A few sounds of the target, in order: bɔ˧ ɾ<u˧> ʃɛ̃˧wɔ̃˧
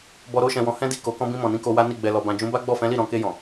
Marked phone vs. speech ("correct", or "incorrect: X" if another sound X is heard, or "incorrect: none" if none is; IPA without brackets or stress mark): incorrect: o˧